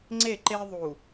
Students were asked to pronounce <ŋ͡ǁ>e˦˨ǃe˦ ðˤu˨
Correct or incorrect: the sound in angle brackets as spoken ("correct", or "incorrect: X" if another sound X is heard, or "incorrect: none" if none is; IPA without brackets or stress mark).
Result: incorrect: ŋ͡ǀ